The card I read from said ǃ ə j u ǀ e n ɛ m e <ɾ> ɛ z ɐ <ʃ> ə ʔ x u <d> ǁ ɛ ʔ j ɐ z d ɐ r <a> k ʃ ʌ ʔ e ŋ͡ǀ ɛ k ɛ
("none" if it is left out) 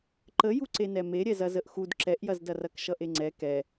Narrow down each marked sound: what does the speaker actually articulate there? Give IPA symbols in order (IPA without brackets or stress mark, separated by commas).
ɾʲ, z, d, ɐ